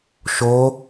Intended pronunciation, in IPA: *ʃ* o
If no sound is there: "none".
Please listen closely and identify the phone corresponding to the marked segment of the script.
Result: ʃ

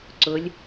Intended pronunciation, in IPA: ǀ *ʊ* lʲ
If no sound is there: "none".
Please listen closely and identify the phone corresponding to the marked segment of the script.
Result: ʊ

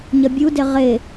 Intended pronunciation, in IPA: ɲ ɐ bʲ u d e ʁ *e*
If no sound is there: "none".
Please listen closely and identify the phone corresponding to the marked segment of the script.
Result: e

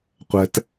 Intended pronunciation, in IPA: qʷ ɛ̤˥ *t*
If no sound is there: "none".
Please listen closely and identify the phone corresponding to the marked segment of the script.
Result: t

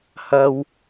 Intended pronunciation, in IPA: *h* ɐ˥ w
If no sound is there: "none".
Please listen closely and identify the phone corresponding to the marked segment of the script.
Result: h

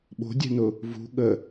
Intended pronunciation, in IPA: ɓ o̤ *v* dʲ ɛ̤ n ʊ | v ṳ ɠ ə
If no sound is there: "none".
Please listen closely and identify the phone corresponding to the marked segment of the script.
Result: none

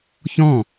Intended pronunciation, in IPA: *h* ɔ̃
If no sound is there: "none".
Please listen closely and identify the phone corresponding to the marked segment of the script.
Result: ç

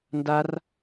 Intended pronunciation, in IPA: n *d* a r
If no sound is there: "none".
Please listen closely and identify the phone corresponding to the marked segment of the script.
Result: d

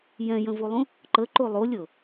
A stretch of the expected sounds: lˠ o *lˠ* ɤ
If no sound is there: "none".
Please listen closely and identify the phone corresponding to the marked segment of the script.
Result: lʲ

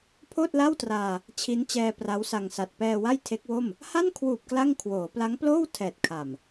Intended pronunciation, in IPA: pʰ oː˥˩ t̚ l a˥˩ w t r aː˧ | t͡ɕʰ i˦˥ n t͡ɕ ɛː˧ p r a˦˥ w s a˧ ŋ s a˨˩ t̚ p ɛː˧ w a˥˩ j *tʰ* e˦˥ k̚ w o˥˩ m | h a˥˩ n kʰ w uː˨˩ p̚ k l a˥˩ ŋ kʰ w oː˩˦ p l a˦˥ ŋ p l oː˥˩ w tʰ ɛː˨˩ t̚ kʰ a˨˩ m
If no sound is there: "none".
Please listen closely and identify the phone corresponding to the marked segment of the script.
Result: tʰ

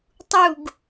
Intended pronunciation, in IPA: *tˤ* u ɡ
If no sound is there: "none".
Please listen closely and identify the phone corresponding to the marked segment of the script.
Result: tˤ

